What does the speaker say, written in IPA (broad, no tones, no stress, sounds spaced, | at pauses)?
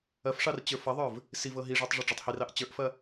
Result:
ɐ f ʂ ɑ r t͡ɕ ə˞ f ɐ ðˤ ə˞ v | s i v ɤ ɦ i ʐ o tˤ ʐ ɤ ɖ͡ʐ i tˤ h i r ɑ ʔ t͡ɕ ə˞ ʔ f ɐ